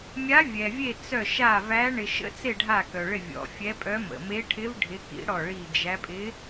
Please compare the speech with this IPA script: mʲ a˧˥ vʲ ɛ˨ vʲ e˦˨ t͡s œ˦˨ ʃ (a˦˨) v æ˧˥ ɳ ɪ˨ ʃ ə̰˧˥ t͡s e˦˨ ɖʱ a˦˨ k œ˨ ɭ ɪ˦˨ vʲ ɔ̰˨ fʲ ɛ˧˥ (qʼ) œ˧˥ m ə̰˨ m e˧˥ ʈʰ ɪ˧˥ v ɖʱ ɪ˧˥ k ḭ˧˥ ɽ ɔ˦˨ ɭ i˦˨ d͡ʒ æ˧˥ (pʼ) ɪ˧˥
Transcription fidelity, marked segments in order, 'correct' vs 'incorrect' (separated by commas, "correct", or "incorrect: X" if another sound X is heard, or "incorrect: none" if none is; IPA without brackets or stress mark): correct, incorrect: pʼ, correct